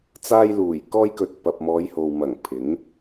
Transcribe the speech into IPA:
t͡s aː˧ j l uː˨˩ j k ɔː˥ j k ɵ˧ t̚ p ɐ˨ p̚ m ɔː˨˧ j h o˨ w m ɐ˨˩ ŋ pʰ ɪ˨˥ ŋ

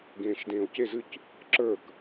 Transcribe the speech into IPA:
ɡ ẽː ʃ d ẽː o̯ c e z ɨ c | ǁ ə˞ k

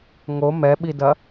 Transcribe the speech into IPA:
ŋ o m ɛ ɓ i d ɐ

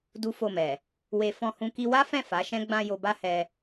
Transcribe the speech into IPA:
d u˦ f o˦˨ m ɛ˨ | w e˧ f ɔ̃˧ h ũ˧ k i˧ w a˦ f ɛ̃˦˨ f a˨˦ ʃ ɛ̃˦ ɡ͡b ã˧ j o˧ b a˦ h ɛ˧

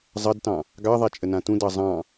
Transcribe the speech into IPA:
zˤ ɐ d t ɑ̃ | ɡ ɑ ðˤ a t͡ʃʼ ə n ã t ũ d ɑ zˤ ɑ̃

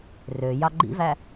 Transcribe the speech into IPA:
r ø j ɑ ɡ͡ǃ ḭ v æ

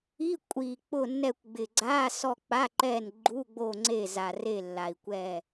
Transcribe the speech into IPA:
i˧˥˧ kʷʼ i˨˩ k͡p ʊ˦˨ nː ɛ˦˨ kʷ ɡ͡b ɪ˨˩ ɡ͡ǀ a˧˥˧ s ɔ˦˨ k͡p a˧˥˧ ǃ ɛ˦˨ n ɡ͡ǃ u˧˥˧ ɡ͡b o˦˨ ŋ͡ǀ e˦˨ z a˨˩ r e˦˨ lː a˨˩ i̯ kʷ ɛ˦˨

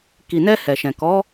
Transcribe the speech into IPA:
k i˨ n ɛ˧ h ɛ˨ ʃ ɛ̃˨ k ɔ˨˦

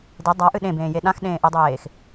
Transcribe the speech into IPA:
d e dˤ a ʔ ɨ ɗ ẽ b ẽː j e ɗ ã x ɗ ẽː ʔ ɨ dˤ eː x

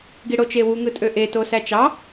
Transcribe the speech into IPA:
ɡ i ɽ o t͡ʃ e w u ŋ ɯ tʼ ø ʔ e t o s æ t͡ʃ ɑ

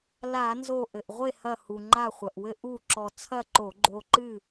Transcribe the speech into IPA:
l a˧˩˧ n z o˧˩ ʔ ɘ˩ ʔ ʁʷ e˥˨ h ɐ˧˩ h u˩ ŋ͡ǃ a˧˩ χʷ ɐ˩ ʔ w ɘ˧ ʔ u˥˨ ǁ ɔ˧ t͡sʰ ɐ˥˨ ǃ o˧˩˧ ɡ͡ǃ o˧ ǃ ɨ˥˨

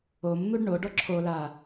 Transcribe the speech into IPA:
o m n̪ u ɖ ɳ o ɖ ɔ ǁʰ o l a

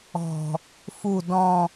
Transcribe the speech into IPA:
ɔ̤ | f u d ɔ̃

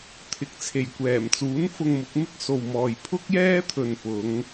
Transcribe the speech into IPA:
t̪ʰ ɪ˨ k̚ t͡sʰ e˨˩ j kʷ ɛː˨˩ m t͡s uː˨˥ n f ʊ˧ ŋ m ʊ˨˥ k̚ m ɪ˥ k̚ s o˨ w m ɔː˨ j pʰ ʊ˥ k̚ j ɛː˥ t̪ʰ ɵ˨ n p ʊ˨˧ ŋ

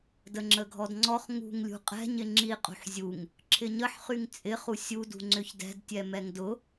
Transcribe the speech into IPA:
d ə ŋ͡ǁ ə ɡʱ ɔ d ŋ͡ǀ ɔ χ ŋ ṳ ŋ lʲ ṳ qʼ ɛ̤ ɲ ɪ ŋ͡ǁ i qʼ ṳ ħ zʲ u ŋ | ǁʰ ɪ ɲ ə ħ χ y ŋ t͡sʼ ɪ χ u sʲ u d ṳ ŋ͡ǀ ʏ ç d ɛ̤ d tʲ ɛ m ɛ ŋ d ʊ

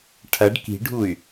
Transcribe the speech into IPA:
ʈʰ ɐ ɖ k i̤ ɖʱ u y̯

